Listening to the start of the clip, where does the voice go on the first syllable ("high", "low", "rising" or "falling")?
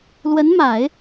rising